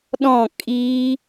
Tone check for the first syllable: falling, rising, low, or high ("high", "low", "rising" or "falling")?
falling